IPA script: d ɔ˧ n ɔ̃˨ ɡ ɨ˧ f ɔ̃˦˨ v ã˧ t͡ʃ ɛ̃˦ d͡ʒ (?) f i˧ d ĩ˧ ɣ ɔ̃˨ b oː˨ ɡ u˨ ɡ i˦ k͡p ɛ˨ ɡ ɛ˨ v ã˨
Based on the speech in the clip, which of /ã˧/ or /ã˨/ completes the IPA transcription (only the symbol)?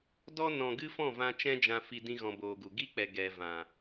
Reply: ã˧